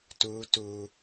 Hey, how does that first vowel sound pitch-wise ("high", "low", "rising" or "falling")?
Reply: high